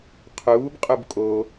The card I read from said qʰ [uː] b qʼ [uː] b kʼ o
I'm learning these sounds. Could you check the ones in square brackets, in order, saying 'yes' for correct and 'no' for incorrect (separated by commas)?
yes, no